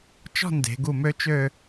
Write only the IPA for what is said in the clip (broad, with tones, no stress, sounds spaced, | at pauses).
t͡ʃ ɔ̤˥˧ n d e̤˩˧ ɡ u˧˩ m ø˧ t͡ʃ ø˥˧